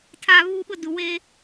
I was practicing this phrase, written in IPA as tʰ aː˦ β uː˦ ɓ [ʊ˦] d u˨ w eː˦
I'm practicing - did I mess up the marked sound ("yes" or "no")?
no